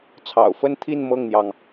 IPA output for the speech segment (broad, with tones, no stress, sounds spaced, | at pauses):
t͡sʰ ɑ̰˨˩ ʊ̯ f ə˥˧ n t̪ʰ i˥˧ n m ɤ˥˩ ŋ n̪ j ɑ˩ ŋ